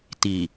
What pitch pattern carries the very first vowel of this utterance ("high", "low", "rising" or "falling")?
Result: low